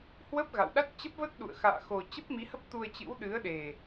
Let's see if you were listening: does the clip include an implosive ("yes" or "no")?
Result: yes